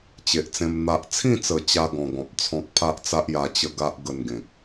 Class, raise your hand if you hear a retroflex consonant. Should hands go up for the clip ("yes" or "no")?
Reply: no